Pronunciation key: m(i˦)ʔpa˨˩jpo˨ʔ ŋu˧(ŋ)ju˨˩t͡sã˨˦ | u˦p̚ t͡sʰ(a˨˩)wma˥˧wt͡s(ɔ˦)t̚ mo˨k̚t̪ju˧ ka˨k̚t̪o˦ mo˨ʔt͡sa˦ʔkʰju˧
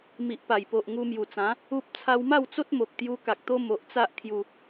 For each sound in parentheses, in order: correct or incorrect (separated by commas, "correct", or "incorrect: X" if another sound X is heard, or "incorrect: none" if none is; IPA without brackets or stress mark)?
incorrect: i˨, incorrect: m, incorrect: a˧, incorrect: o˦